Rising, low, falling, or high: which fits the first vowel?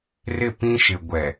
falling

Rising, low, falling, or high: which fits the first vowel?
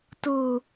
low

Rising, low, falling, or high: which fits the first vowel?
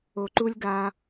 low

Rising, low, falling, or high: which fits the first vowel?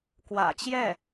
low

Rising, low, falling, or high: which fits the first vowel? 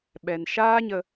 low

